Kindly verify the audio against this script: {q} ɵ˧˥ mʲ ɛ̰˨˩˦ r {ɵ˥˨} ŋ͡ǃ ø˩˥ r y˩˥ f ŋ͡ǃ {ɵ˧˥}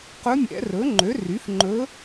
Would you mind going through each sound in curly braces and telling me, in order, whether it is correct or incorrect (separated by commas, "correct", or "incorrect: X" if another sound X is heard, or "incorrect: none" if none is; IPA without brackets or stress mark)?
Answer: correct, incorrect: ɵ˩˥, correct